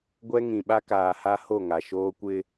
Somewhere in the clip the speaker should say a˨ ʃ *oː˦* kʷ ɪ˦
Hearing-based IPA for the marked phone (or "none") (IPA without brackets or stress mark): oː˦